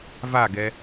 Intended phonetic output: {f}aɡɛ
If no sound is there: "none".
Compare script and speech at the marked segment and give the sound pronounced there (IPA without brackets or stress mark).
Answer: v